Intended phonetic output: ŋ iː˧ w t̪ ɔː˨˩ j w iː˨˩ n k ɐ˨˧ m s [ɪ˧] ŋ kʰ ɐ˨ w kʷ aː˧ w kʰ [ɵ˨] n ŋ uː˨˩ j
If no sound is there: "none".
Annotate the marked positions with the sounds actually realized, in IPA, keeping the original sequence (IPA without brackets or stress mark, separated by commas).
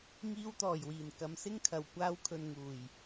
ɪ˥, ɵ˨